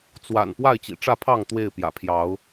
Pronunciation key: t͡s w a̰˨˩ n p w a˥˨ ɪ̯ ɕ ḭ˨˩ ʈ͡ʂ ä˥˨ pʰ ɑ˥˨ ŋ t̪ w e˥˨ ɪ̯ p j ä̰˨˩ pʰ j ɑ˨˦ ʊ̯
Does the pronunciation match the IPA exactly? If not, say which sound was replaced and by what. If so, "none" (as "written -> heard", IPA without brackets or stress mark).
ɕ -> t͡ɕ